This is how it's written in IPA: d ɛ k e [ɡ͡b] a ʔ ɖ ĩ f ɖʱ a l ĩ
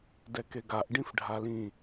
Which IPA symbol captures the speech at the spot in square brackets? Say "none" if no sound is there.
ɡ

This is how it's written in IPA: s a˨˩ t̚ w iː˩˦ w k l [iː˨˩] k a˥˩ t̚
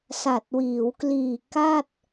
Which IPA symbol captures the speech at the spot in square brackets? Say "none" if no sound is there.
iː˨˩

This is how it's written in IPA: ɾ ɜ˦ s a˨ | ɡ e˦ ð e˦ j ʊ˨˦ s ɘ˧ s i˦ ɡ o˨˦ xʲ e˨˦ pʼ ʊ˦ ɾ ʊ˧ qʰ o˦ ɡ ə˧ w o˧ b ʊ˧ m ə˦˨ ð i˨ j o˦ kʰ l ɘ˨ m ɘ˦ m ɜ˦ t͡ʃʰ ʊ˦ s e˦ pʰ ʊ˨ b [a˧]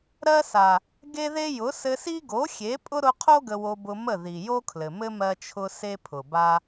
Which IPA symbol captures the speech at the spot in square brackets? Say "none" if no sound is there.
a˦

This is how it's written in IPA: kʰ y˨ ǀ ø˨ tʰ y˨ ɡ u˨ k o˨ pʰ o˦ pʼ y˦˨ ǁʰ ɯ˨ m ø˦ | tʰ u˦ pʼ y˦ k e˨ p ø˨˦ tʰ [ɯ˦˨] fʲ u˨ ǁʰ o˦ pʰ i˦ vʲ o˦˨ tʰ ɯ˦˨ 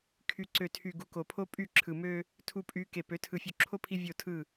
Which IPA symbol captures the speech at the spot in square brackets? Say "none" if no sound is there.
ɯ˨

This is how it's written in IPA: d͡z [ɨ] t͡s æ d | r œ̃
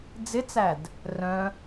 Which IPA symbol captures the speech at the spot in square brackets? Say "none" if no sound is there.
ɪ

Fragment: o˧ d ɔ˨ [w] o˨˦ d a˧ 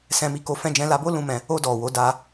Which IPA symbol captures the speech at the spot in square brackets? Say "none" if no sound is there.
w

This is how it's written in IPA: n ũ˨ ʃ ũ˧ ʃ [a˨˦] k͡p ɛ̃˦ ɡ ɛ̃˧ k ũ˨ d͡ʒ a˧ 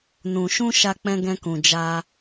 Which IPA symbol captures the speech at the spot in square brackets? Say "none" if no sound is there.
a˦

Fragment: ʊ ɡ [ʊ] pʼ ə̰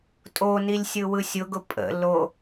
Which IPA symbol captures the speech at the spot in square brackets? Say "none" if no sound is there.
ʊ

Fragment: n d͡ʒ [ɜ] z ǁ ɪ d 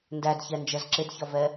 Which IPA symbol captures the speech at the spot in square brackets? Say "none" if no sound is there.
ɜ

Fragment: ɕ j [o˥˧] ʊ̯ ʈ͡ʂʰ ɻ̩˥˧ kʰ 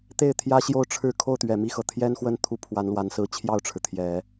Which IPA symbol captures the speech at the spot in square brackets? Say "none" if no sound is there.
o˥˧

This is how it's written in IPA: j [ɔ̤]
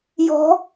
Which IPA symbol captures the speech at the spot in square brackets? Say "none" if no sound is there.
ɔ̤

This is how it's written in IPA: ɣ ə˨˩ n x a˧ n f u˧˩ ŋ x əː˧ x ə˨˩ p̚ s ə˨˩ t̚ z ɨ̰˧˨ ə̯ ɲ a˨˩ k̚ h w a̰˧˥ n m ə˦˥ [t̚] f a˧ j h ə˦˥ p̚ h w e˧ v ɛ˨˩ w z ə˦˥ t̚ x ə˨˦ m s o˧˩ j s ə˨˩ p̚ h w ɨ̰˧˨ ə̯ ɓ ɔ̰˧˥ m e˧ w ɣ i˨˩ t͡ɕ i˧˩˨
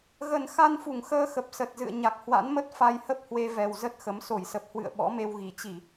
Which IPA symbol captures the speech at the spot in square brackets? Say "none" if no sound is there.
t̚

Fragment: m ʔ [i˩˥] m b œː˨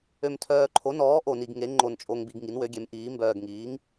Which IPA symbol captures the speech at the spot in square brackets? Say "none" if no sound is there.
iː˩˥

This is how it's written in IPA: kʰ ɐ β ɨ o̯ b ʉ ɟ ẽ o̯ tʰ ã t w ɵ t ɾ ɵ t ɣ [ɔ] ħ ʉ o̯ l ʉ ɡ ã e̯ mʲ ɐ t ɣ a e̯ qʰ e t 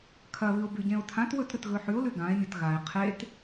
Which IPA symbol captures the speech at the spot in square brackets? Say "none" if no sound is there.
ɵ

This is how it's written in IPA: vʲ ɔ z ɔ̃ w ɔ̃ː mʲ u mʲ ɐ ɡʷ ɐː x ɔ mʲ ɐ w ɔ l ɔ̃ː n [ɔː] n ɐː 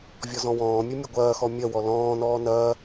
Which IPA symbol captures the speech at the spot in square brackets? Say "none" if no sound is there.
ɔː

